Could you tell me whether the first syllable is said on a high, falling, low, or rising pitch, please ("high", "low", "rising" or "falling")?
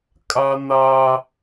high